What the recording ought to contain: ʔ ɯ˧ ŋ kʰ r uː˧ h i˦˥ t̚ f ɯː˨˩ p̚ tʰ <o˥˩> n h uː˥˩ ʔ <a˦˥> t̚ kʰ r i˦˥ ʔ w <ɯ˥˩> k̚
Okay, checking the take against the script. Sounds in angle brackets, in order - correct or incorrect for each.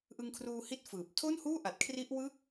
correct, incorrect: a˨˩, correct

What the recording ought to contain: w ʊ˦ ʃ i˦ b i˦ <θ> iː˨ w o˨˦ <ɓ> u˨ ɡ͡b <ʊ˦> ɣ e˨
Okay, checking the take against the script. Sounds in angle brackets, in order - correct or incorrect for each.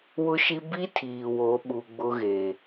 incorrect: tʰ, correct, correct

